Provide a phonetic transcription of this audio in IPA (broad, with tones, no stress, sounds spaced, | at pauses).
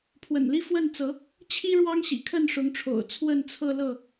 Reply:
pʰ w ə̰˨˩ n l i˦ f w ə˥˨ n t͡s ɤ˨˦ | t͡ɕʰ i˦ ɻ w ɑ˦ ŋ ɕ ḭ˨˩ kʰ ə˥˨ n ʂ ʊ˨˦ ŋ ʈ͡ʂʰ o̰˨˩ ʊ̯ t͡sʰ w ə˥˨ n t͡sʰ ɤ˥˨ l ɤ˥˨